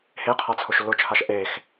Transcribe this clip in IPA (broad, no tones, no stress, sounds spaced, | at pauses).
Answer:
h e qʰ a t͡sʰ ʊ ʃ lː ʊ t͡ʃʰ a ʃ ʔ e x